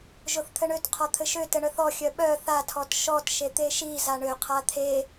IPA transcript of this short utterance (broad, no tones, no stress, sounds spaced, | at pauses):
ʒ o θ t̪ʰ ɘ ɳ ø t qʰ ɔ t̪ʰ ɘ ʃ ø t ɘ ɳ œ θ ɔ xʲ œ ɓ œ θ a tʰ ɔ t ʃ ɔ t ʃ e t̪ e ʃ i z a ɳ ø qʰ a t̪ʰ e